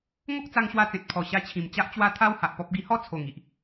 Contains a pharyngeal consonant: no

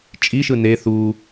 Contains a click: no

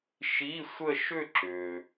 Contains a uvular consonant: no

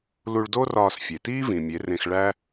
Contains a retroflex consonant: yes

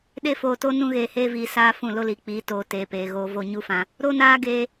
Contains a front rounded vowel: no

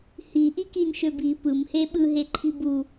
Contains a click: yes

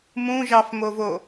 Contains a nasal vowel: yes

